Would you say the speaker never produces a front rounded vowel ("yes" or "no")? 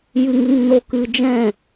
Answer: yes